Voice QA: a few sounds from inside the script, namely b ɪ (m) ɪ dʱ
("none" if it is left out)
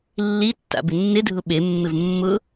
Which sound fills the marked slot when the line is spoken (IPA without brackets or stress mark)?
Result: nː